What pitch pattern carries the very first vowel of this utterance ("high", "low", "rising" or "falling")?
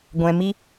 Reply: low